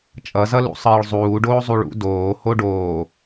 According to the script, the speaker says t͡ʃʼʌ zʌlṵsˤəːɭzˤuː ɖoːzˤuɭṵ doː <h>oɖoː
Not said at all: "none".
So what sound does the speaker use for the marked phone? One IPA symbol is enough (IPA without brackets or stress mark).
h